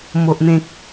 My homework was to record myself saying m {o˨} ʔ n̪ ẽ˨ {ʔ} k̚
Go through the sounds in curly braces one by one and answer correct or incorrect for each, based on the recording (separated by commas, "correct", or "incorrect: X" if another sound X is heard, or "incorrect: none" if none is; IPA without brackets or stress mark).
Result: correct, incorrect: none